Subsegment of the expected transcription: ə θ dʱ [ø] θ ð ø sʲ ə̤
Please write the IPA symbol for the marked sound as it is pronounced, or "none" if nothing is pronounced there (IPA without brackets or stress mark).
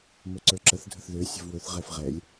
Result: ə